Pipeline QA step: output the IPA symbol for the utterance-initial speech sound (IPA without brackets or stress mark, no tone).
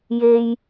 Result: j